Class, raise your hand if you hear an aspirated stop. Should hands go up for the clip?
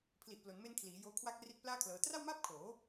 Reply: yes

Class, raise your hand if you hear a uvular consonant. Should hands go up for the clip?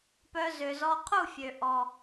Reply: yes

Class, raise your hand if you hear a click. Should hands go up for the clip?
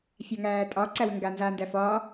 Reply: yes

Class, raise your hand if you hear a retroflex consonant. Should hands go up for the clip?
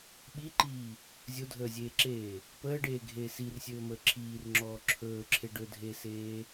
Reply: yes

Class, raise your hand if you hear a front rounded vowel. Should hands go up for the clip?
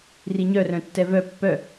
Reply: yes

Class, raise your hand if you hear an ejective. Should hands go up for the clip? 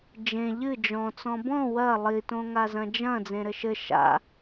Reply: no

